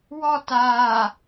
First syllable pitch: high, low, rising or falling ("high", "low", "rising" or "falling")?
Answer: falling